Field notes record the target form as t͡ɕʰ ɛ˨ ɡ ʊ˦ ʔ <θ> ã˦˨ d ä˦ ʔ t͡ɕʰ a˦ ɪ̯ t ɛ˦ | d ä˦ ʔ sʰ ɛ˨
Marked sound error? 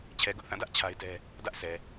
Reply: no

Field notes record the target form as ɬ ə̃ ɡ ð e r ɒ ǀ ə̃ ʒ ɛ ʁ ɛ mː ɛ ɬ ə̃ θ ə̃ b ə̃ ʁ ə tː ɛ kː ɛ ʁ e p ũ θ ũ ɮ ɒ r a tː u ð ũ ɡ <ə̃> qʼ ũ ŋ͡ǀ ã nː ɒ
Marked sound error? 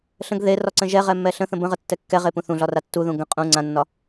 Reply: no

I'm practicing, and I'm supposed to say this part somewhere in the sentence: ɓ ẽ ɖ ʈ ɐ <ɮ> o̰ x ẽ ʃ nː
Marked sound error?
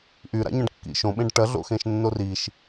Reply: no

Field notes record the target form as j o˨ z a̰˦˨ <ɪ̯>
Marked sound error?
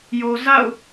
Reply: yes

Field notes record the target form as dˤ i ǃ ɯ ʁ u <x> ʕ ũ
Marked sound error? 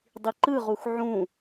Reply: no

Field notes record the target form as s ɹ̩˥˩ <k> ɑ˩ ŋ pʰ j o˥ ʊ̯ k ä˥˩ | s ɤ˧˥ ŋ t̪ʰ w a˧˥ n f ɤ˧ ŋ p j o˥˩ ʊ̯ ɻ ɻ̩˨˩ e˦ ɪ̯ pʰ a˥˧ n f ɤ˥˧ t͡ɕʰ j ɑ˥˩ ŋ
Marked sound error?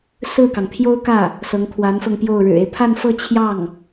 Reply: no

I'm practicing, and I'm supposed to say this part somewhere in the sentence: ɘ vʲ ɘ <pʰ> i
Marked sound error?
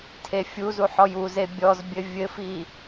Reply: yes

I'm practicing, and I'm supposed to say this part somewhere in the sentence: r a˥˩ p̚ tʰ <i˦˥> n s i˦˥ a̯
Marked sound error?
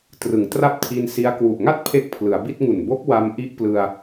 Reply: yes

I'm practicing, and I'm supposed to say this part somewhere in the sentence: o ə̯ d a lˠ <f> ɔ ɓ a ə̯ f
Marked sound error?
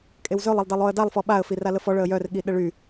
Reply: no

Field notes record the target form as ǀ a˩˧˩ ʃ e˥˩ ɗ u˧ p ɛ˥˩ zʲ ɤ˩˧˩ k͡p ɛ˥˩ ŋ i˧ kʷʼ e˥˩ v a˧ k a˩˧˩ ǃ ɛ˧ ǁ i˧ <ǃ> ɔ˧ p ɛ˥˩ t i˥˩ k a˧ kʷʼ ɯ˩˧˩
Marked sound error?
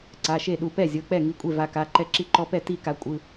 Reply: no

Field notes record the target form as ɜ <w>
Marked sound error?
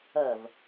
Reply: yes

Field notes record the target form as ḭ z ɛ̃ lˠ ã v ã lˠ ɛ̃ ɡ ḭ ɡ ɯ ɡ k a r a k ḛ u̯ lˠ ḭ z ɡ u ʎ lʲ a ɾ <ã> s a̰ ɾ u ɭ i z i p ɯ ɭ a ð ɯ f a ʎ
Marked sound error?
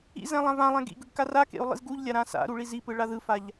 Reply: no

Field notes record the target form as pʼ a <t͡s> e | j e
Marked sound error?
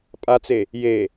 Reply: no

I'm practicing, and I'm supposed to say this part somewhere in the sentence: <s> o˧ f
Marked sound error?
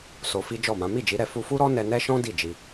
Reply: no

